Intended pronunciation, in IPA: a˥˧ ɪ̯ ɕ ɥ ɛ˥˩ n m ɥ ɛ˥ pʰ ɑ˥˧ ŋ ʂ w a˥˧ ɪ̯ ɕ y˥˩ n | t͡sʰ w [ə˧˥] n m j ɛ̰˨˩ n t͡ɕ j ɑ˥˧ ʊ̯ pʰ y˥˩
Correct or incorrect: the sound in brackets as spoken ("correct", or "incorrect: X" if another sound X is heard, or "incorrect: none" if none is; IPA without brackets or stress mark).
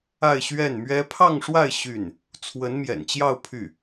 correct